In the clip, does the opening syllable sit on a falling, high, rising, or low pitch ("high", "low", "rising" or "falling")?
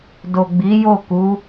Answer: low